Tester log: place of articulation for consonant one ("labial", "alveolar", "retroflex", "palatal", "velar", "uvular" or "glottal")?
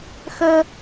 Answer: velar